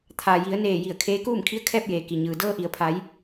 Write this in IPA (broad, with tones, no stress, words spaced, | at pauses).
t̪ʰa˩ ji˩˧ə̯neː˧˩ ji˧˩ə̯kʰeː˧˥ kuː˥˨mkʰi˧˥ə̯kʰɛː˥˨p̚jeː˩ ki˩ɲɯː˩ dɤː˧ʔi˩ə̯pʰa˩˧j